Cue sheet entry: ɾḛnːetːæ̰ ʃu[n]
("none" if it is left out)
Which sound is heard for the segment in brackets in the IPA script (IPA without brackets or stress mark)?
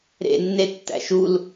l